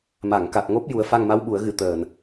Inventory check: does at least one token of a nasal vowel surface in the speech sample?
no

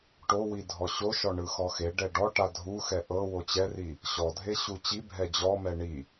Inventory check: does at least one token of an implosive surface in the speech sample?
no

